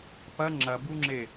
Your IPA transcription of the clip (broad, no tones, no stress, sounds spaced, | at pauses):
p ɐ ŋ͡ǁ ɐ b u ŋ͡ǁ e